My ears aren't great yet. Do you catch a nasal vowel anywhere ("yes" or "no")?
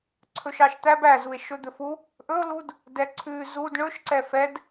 no